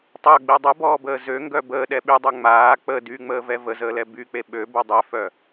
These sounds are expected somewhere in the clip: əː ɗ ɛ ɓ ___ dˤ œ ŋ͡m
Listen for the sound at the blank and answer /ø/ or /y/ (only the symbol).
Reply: y